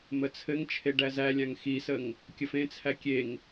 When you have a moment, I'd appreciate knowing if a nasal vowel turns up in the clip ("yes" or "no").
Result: yes